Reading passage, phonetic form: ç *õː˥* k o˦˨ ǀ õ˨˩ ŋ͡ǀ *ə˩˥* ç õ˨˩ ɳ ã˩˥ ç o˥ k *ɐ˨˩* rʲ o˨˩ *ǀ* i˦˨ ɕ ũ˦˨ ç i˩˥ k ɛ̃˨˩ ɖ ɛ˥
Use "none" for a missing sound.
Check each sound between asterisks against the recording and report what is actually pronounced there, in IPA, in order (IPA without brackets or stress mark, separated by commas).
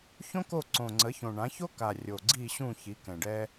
õ˥, ə˩˥, a˨˩, ɡ͡ǀ